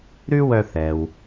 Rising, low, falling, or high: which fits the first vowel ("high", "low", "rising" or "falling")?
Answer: high